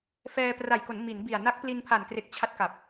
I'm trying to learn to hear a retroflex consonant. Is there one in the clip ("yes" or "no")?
no